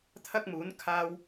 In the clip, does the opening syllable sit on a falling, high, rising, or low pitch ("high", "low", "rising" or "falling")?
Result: high